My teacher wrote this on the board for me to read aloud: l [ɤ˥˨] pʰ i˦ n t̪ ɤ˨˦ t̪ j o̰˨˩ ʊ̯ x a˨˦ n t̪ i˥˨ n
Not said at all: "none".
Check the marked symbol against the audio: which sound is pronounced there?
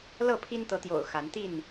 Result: ɤ˥˨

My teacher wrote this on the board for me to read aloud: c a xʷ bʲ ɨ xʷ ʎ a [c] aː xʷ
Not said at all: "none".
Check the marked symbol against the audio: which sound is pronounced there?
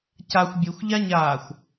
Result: ɲ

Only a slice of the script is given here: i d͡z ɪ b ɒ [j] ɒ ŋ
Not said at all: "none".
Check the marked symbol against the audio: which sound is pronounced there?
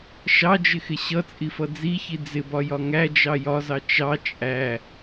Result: j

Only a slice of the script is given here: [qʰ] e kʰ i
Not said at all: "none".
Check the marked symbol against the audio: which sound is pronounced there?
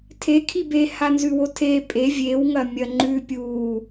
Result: tʰ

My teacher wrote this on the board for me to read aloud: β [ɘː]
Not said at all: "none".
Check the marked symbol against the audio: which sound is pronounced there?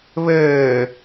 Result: ɘː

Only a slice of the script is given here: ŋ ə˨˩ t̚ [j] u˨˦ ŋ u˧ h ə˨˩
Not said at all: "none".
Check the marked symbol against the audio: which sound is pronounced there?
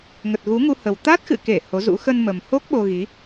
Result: ɣ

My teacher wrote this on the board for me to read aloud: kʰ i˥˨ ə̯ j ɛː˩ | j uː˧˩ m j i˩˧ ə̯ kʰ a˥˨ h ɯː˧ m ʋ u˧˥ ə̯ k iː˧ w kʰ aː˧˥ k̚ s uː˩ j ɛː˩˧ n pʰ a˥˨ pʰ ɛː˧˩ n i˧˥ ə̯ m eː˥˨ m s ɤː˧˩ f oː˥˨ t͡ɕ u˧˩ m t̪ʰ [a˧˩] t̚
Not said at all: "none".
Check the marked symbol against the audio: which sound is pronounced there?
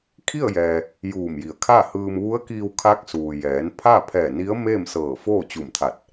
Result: a˧˩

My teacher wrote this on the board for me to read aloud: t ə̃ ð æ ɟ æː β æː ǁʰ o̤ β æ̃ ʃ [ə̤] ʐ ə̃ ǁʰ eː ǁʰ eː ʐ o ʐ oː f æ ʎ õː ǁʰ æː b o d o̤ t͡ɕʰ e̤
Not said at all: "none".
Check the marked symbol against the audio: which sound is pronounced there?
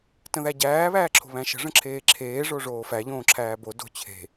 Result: ə̤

